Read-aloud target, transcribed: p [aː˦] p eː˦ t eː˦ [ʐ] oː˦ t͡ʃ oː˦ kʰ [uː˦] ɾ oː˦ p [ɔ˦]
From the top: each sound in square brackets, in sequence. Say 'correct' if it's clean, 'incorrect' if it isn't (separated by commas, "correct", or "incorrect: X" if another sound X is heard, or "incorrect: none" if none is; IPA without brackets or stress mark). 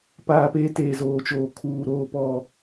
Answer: correct, incorrect: z, correct, correct